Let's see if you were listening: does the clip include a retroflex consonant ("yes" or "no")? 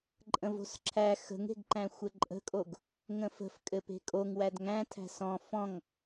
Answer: no